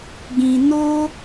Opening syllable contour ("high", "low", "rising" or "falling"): low